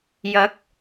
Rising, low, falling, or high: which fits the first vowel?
rising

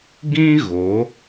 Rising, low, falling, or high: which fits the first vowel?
high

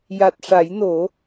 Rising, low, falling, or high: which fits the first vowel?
low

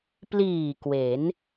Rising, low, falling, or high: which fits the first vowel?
low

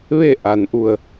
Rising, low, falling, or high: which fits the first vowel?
falling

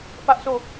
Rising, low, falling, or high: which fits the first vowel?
high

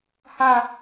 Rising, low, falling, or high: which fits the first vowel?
falling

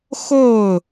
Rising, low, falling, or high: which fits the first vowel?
falling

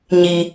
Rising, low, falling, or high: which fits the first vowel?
low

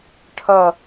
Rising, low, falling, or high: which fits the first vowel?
falling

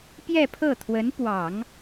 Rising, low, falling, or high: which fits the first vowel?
falling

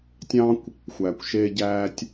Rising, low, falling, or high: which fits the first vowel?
high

